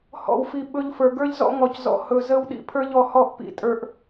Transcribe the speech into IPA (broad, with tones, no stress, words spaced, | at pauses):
hɔ̰˨wfi˨ ɓɵ˦ʎfə˞˨ ɡə˞˦ʎzɔ̰˦ ŋɔ˨czɔ̰˨ hɵ˨zə˦w ɗḭ˦pʰə˞˦ʎɔ˨hɔ˦˨ʔ pḭ˨tʼə˞˨ʔ